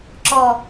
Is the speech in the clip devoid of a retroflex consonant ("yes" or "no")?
yes